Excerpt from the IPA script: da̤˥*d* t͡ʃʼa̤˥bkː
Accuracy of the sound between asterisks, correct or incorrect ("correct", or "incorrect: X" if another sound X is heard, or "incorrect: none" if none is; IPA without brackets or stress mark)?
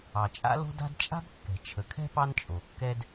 correct